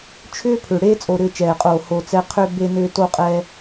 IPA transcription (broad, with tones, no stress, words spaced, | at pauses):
t͡ʃʰʏː˦pʰʏ˨ ɽeː˦t͡sʼo˨ ɾʏː˦t͡ʃɛː˨qʼoː˨ ho˨ t͡sɛ˦ qʰʏ˦ be˦nʏː˦ to˦qʼɛː˦